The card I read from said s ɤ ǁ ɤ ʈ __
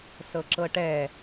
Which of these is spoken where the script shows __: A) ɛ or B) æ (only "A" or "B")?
A